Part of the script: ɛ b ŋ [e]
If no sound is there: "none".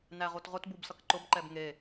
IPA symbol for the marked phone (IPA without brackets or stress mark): e